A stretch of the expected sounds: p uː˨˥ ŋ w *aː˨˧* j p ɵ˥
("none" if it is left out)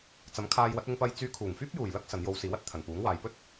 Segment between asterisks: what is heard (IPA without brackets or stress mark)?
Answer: aː˨˧